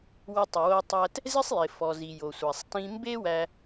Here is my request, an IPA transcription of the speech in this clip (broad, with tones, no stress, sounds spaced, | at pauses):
w ɪ˧ tˤ ɪ˨ w o˧ tˤ æ˧ t | z ɪ˦ sˤ j ɪ˨ f ɔ˨ z i˨ j o˨ sʷ æ˨ sˤ t ĩ˧ m b e˦ w æ˧